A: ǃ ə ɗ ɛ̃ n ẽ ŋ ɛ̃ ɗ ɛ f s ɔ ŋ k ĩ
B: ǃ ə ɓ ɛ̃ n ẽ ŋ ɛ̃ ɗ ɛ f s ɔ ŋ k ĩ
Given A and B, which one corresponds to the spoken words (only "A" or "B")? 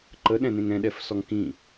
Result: A